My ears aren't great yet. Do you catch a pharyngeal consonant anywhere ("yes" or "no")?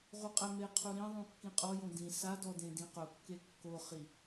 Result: no